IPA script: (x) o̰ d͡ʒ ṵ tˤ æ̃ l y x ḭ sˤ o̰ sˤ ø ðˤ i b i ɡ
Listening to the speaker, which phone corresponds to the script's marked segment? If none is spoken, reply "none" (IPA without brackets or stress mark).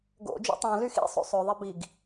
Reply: ɡ